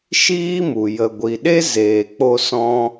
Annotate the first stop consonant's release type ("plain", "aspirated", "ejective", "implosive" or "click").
plain